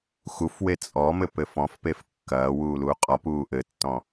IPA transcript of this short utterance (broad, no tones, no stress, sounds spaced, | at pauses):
x u f w e t͡sʼ ɔ m ɘ p ɘ f ɔ̃ f p e f kː ɐː w uː l uː qʼ ɔ p uː ʔ ɘ tː ɔ̃